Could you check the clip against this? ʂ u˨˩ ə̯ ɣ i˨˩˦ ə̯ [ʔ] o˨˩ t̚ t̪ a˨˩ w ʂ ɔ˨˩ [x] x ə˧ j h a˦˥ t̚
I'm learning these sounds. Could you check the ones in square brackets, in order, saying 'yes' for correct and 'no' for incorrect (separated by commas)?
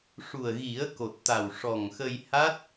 no, no